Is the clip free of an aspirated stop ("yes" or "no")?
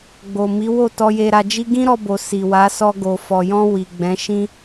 yes